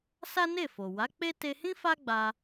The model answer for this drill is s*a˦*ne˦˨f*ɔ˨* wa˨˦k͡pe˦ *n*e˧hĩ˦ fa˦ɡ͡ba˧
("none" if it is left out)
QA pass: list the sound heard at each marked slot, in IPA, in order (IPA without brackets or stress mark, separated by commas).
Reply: a˦, o˨, t